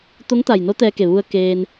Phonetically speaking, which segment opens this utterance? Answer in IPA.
t̪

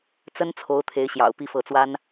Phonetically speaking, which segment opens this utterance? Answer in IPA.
t͡s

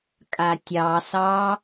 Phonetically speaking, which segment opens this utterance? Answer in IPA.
kʼ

